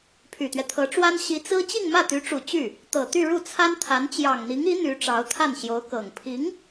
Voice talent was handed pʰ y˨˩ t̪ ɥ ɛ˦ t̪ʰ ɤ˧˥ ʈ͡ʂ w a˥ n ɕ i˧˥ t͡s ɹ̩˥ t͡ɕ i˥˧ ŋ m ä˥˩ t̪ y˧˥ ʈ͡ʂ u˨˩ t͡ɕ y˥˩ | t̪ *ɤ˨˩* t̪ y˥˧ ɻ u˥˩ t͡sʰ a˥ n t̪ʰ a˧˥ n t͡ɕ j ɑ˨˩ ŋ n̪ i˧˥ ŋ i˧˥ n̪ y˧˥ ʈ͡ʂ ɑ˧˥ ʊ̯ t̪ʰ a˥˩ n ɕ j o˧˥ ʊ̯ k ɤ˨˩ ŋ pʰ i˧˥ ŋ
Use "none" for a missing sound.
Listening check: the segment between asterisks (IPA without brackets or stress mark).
ɤ˨˩